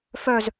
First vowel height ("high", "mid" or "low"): mid